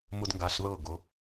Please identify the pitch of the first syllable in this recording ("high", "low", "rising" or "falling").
high